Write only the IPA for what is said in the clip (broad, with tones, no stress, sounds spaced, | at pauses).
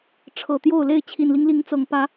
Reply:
ʈ͡ʂʰ ɤ˨˩ t̪ j o˥˨ ʊ̯ l e˥˨ ɪ̯ t͡ɕʰ i˨˩ n l i˦ ŋ l i˨˦ ŋ t͡s ɤ˨˩ ŋ p ä˨˦